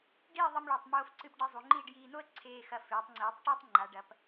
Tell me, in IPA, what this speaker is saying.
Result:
ɖ iː˥˧ ðˤ ɨ˧ m ɭ ɐ˧˩ tˤ m oː˧ f ǀ ɨ˧ p ɖ i˧ zˤ u˩˧ ŋ͡ǃ iː˥˧ ɖ j iː˧ n o˥ ə̯ ǀʰ eː˧ x ɐ˧˩ f eː˩˧ tˤ ŋ͡ǀ iː˩˧ tˤ ʈ e˥ tˤ ŋ͡ǃ a˩˧ ɖ ɐ˩˧ p

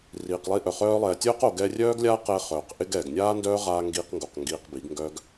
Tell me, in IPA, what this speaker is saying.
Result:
r iː˨ q lˠ i˧ ʔ œ˨ χ œː˧ lˠ ɛː˨ tʲ œː˦ q o˨ ɡ ɛ˧ rʲ œː˦ ɡ lʲ aː˦ q ɛ˧ χ œː˨ q ʔ ɪ˦ ɡ ɛː˨ ɡ nʲ aː˦ n d œː˦ ʁ aː˧ ŋ ɡ iː˧ q ŋ ɡ o˨ q ŋ ɡ iː˧ q b i˨˦ ɡ ŋ ɡ œː˦ ɡ

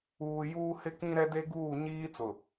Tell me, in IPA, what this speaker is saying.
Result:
uː˨ j uː˦ h ɪ˦ k ĩ˦ ɾ ɛ˦ d e˦ ɡ uː˦˨ ɲ iː˦ t͡s ʊ˨

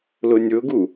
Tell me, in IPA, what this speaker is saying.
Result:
l ʊ nʲ ʊ ɡ u

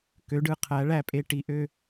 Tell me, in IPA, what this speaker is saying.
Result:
k ø˩˧ ɖ ɯ˩˧ qʰ æ˩˧ ɭ æ˧˩ pʼ e˧ ʈ i˧˩ ʔ ø˥˧

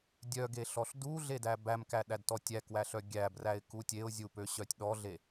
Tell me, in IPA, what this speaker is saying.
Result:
dʲ œ ɡ e ɬ ɔ ɬ d u ɮ e d æ b æ m k æ ɗ æ d t ɔ tʲ æ k w æ ɬ œ ɡʲ æ b r æ ɪ̯ k u tʲ e ʊ̯ zʲ u p ø ɕ œ tʲ ɗ ɔ ɮ e

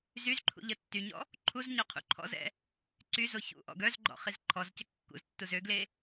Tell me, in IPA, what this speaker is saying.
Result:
z y z ǃʰ ṵ ʎ ə tː y ɲ ɔ̰ | ǃʰ u z ɲ ɔ qʰ ṵ ǃʰ ɔ̰ z ɛ̰ | ǀ y z o ç ṵ ʔ ɔ̰ ɡ œ z ɡ͡ǃ ɔ̰ χ i z ǃʰ ɔ z c ə kː ṵ z tː u z ø ɡ l e

